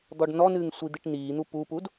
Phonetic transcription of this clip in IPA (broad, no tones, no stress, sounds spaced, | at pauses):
d̪ ɔ ɖ n ɔ n ɨː ŋ sʷ i d̪ i ʈ n iː n̪ u p u p u d